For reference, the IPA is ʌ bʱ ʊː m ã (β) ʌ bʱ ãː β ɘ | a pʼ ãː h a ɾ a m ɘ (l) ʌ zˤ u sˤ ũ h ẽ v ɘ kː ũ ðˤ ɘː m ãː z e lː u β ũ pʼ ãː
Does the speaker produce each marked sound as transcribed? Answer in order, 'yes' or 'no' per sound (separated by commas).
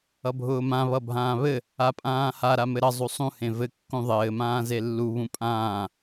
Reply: yes, no